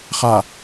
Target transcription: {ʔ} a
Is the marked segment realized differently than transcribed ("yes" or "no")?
yes